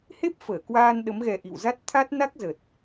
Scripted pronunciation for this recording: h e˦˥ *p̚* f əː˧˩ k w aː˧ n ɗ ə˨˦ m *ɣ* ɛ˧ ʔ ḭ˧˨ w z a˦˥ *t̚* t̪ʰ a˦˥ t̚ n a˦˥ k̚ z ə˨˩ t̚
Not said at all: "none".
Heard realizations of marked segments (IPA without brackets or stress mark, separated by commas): p̚, ɣ, t̚